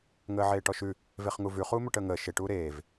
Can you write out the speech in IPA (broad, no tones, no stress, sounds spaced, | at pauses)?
ŋ əː ʕ eː ʈ ɔ ʃ ʉ | v e χ ŋ u v ʉ χ uː m ɵ ʈ əː ŋ əː ʃ e ʈ uː ɾ eː v